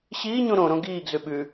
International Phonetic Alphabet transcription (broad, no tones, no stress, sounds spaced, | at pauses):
ɕ iː ɲ ũ ɾ õ ɾ õ ɡ iː ɡ z ʉ ɓ ʉ